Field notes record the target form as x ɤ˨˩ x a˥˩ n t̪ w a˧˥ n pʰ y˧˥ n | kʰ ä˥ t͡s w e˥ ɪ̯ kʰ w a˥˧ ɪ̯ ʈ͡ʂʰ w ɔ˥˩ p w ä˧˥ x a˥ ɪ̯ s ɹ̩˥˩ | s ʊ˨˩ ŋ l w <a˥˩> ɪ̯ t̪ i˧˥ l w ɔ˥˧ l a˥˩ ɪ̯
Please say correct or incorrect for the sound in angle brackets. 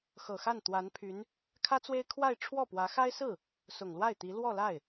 correct